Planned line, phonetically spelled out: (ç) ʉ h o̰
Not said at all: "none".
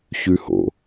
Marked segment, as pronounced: ç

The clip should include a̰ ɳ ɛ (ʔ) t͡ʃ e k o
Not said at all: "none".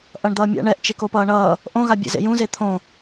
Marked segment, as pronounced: ʔ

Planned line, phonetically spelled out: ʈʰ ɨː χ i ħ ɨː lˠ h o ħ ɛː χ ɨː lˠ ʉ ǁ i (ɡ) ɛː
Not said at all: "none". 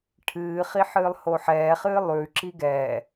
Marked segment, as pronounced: ɡ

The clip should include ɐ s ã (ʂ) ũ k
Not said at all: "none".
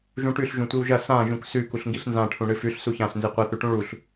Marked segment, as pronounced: ʒ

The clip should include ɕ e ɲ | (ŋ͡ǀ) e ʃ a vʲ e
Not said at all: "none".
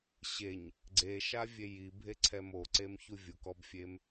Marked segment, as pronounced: ɡ͡ǀ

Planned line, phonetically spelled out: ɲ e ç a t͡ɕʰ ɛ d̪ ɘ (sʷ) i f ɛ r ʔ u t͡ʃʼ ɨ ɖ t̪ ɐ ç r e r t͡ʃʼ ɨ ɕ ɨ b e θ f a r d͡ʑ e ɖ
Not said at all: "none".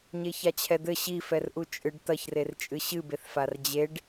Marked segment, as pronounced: ɕ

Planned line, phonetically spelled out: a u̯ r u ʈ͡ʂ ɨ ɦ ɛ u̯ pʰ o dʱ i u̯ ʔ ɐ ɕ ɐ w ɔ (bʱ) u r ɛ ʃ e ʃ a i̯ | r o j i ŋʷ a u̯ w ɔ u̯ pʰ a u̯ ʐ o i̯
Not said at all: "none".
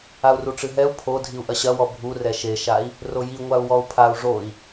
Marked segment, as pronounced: bʱ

